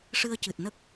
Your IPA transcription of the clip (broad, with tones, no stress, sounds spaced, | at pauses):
ʂ ɨ˧ ə̯ c ɨ˨˩ t̚ n ə˦˥ k̚